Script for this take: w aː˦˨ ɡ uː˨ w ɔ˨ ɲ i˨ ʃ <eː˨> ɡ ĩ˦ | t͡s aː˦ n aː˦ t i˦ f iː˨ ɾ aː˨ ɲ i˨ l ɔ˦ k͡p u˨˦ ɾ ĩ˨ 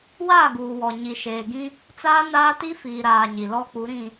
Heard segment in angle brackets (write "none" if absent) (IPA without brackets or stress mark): eː˨